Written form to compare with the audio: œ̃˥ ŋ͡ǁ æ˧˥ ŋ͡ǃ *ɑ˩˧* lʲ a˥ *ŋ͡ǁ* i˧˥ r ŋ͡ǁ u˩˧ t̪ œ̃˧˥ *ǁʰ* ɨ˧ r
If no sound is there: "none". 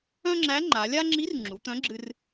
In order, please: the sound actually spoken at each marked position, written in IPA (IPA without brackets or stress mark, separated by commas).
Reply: a˩˧, ŋ͡ǁ, ɡ͡ǁ